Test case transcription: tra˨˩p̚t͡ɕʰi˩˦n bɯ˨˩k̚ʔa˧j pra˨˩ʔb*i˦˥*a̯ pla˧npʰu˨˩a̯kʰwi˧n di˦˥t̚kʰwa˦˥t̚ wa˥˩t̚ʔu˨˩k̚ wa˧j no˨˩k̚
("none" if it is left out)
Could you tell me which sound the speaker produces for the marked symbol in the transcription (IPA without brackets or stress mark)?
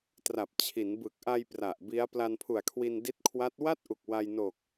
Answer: i˦˥